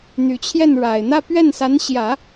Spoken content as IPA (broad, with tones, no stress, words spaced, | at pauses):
n̪y˨˩t͡ɕʰjɛ˥˩nɻa˨˩ɪ̯ n̪ä˥˧pɥɛ˥˩nsa˧˥n ɕjä˨˩˦